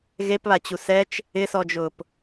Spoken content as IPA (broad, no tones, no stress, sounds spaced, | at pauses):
ɣ e p β a t͡ɕ u s ɛ t͡ʃ | ɪ s ɔ d͡ʒ ʊː p